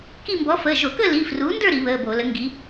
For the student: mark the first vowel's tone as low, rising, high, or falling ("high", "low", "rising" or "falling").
falling